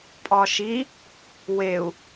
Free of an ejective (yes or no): no